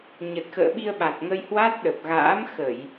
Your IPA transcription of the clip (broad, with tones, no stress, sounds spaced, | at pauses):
ɲ ə˨˩ t̚ x ə̰ː˧˨ ɓ i˧ ə̯ ɓ a˨˩ t̚ ŋ ə˧ j h w a˦˥ t̚ ɗ ə˨˩ p̚ ɣ a̰ː˧˥ m x ə˧˩˨ j